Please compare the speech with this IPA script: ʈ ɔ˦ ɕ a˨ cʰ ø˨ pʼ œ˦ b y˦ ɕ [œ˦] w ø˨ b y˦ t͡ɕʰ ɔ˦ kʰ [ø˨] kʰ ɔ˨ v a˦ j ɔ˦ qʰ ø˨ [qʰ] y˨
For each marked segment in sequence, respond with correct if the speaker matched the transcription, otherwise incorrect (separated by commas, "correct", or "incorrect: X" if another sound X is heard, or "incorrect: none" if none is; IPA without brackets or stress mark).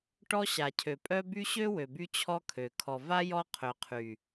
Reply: incorrect: ø˦, correct, correct